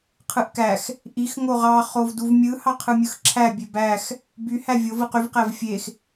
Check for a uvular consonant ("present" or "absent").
present